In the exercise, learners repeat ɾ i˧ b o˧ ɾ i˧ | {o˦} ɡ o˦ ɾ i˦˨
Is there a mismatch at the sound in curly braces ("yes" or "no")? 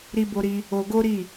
yes